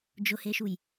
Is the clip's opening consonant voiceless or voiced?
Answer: voiced